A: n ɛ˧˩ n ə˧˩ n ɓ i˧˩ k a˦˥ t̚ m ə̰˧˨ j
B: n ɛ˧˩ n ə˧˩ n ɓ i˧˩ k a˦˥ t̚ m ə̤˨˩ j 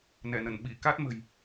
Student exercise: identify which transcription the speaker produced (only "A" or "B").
B